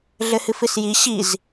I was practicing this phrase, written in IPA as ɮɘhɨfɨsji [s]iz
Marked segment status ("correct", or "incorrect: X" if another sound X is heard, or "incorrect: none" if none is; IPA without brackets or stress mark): incorrect: ɕ